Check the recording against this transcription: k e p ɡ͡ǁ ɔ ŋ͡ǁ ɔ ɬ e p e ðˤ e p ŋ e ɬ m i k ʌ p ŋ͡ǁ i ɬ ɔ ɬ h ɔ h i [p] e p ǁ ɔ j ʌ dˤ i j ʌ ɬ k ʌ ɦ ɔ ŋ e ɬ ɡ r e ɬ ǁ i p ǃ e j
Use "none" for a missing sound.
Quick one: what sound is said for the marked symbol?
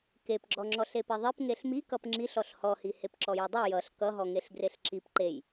h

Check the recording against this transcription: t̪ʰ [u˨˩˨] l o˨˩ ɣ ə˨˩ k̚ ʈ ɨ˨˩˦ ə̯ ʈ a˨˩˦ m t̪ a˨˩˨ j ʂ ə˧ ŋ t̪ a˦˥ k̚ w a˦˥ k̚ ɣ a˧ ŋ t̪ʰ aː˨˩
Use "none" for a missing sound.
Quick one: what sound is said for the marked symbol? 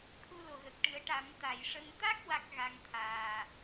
u˧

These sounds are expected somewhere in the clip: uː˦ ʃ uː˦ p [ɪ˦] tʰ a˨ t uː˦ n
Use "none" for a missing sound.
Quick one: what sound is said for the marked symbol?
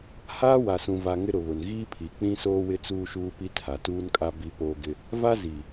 i˦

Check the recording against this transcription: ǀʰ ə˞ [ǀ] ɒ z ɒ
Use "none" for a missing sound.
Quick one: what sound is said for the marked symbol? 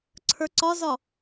ǀ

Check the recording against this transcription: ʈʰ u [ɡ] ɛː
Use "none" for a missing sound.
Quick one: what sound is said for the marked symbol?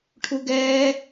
ɡ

